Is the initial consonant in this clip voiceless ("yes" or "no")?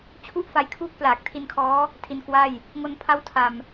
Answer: yes